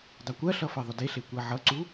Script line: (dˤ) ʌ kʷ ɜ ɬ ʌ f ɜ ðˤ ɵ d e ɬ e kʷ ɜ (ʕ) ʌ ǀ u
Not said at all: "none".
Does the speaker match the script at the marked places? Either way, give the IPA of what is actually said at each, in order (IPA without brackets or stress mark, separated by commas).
dˤ, ʕ